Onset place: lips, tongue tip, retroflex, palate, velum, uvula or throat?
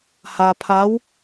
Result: throat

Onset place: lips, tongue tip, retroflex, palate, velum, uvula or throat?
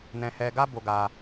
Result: tongue tip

